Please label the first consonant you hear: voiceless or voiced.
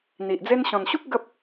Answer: voiced